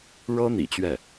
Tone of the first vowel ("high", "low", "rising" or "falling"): high